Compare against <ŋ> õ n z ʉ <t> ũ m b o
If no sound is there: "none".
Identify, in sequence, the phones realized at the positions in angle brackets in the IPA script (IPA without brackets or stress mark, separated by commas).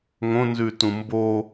ŋ, t